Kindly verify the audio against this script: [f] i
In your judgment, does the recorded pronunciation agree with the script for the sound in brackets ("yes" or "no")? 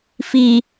yes